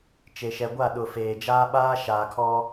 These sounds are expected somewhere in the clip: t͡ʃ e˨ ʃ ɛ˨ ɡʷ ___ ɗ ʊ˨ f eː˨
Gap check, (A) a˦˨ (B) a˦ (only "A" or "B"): A